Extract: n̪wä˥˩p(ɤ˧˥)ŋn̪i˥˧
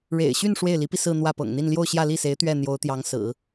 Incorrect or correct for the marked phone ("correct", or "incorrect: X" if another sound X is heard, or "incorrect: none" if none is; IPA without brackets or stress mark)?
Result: incorrect: ɤ̰˨˩